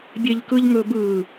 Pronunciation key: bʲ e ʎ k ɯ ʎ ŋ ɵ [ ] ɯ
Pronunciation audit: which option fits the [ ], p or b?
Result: b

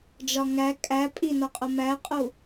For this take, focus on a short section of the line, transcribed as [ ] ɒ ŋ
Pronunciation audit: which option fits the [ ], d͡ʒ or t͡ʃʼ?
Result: d͡ʒ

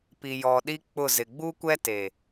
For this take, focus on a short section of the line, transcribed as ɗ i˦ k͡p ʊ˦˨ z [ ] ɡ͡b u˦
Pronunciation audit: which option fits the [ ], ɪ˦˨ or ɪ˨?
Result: ɪ˨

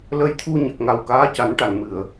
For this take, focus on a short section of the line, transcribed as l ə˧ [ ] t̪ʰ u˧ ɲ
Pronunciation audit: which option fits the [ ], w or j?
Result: j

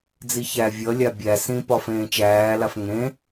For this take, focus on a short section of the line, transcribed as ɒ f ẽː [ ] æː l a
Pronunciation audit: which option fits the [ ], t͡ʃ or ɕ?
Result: t͡ʃ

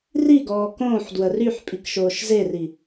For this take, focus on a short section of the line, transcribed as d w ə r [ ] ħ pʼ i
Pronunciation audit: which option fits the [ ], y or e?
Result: y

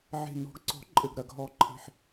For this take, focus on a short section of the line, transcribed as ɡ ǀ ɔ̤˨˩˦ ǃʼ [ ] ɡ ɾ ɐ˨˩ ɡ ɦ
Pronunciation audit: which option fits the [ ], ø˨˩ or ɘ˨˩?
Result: ɘ˨˩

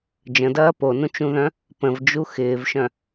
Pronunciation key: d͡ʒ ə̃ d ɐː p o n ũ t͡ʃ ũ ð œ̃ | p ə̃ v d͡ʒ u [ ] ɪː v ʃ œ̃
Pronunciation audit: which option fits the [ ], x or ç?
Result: x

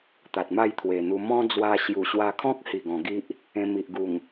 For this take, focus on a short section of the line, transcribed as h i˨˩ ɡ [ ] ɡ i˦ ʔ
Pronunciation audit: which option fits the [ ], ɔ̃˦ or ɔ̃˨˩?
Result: ɔ̃˨˩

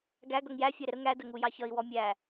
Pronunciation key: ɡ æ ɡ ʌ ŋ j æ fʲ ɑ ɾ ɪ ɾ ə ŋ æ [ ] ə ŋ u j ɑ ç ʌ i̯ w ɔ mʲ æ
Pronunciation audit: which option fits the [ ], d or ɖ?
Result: d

